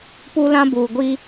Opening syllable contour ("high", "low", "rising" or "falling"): high